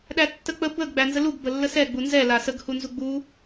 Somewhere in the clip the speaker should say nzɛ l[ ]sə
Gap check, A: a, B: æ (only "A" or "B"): A